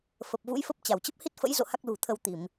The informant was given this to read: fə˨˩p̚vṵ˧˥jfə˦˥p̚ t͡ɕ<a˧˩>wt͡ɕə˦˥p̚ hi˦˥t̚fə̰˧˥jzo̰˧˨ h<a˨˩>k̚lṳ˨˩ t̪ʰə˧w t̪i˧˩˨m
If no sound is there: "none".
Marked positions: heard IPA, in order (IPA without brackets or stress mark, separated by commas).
a˧˩, a˦˥